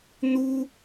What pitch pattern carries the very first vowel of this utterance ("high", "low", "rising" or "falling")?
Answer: high